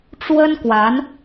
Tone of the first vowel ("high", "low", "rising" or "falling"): high